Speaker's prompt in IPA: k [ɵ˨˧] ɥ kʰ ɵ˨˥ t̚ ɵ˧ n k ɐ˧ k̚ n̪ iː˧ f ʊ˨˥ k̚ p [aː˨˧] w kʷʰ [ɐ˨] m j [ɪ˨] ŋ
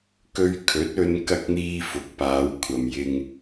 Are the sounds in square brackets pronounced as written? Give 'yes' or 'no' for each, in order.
no, yes, yes, yes

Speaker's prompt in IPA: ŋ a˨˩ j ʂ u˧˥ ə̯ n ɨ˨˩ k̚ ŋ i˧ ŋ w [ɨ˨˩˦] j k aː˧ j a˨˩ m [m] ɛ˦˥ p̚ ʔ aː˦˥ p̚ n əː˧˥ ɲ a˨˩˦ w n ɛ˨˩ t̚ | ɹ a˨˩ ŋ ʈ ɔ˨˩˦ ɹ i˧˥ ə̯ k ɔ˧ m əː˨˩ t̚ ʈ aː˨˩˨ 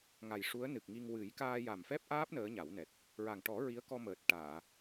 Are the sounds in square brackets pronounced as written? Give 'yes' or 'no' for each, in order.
yes, no

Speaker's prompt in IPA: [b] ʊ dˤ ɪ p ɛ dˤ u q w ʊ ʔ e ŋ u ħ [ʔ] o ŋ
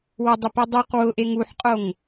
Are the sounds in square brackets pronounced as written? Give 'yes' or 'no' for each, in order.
no, no

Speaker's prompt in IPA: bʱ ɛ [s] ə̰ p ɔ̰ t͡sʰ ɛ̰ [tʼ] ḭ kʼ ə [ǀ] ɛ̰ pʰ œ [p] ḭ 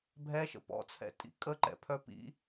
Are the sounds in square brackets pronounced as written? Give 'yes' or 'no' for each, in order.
no, yes, no, yes

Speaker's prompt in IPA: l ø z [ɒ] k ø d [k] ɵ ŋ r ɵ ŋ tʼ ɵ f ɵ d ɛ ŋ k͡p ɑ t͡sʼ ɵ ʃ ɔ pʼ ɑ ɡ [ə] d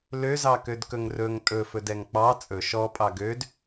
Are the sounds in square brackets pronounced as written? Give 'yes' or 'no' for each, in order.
no, yes, no

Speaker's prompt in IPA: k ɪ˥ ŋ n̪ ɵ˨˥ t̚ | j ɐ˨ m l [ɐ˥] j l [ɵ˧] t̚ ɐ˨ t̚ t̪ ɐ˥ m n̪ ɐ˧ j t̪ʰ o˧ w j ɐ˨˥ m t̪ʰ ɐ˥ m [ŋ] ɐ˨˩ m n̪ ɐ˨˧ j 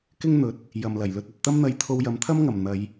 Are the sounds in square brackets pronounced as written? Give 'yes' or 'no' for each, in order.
no, yes, yes

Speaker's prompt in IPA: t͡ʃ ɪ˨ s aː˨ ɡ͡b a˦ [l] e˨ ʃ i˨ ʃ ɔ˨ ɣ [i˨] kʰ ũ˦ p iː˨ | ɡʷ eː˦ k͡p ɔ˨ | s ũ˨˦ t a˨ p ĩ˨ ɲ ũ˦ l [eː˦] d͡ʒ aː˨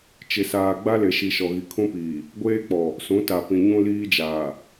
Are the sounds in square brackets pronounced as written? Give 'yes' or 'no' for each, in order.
yes, yes, no

